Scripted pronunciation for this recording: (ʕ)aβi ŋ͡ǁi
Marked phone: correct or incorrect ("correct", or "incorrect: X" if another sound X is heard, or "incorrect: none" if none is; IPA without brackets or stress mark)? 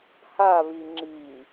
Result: incorrect: h